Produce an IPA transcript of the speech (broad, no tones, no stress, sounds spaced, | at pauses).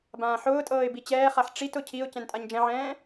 b ãː ħ ʊː tʼ ɤː ɪ̯ b i t͡ɕ ɛː χ a ħ ʈ͡ʂ i t ʊ cʰ i ʊ̯ c ɛ̃ n tʼ a ɲ d͡ʒ ɛ̃ ʕ ɛ̃ː